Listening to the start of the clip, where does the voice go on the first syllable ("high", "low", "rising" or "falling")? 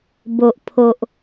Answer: low